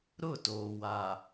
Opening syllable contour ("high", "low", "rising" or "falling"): falling